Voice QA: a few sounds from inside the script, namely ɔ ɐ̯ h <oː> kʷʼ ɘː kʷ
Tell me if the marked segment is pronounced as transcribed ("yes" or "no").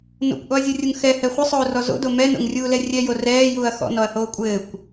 yes